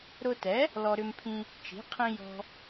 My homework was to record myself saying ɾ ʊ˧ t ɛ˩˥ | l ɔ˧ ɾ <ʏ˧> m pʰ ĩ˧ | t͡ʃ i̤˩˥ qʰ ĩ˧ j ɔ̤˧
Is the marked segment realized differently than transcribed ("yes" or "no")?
no